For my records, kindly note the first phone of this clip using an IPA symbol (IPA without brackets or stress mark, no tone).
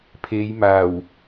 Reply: pʰ